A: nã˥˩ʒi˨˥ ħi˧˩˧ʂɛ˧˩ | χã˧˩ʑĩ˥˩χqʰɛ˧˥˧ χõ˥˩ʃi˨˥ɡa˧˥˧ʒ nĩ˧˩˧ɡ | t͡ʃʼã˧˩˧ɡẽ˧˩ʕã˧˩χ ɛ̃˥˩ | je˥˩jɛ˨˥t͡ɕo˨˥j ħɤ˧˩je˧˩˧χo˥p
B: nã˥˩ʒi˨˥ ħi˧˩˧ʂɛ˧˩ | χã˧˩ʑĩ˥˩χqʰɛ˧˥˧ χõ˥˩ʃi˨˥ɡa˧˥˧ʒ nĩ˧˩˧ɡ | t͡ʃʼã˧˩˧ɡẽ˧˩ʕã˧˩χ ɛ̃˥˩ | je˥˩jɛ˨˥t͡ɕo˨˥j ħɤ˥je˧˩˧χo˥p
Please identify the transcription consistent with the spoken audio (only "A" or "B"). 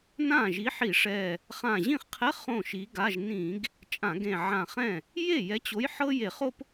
B